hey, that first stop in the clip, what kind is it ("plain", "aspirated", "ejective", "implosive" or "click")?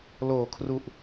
aspirated